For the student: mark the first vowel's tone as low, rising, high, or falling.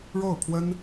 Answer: falling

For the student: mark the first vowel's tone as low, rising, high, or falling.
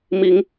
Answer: rising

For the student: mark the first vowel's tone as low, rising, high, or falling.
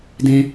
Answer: low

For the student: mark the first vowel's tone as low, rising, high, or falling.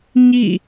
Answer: falling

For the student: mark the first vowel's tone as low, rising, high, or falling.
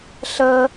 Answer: high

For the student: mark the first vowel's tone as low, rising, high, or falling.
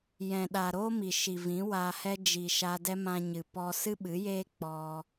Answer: low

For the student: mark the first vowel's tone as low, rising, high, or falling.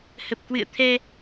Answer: low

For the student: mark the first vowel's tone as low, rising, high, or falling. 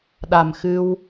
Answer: low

